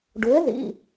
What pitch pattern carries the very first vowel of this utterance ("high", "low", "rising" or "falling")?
rising